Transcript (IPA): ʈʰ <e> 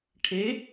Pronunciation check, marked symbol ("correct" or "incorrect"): correct